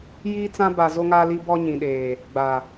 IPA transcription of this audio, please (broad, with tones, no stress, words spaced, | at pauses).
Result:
jiː˦t͡sã˦ ba˨ zo˦ŋaː˦li˦bɔ˦ ɲĩ˨ɗeː˨ | ɡ͡ba˨